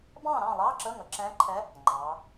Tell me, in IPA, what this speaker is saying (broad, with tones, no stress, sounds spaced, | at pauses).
b ɑ̃ː˥˨ ɾ ɑ̃˥˨ lˠ ɑː˧˥˧ ǁ ə˧˥˧ ŋ ə˩˧ ǁ ɛ̃ː˧˥ ǃʰ ɛ˧˥ | ŋ͡ǃ ɑː˩˧